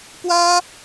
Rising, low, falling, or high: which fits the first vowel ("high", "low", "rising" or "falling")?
high